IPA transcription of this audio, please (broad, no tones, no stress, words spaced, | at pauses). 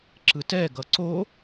ǁɯtɛ ɡʌǀo